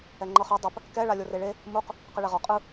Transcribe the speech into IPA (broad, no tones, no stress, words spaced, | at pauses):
ɛŋ͡ǃɤχɤ dˤɯp | kɛ ɭalʲoreɭe | muq | qɯɭɛʁɔ qʼɯ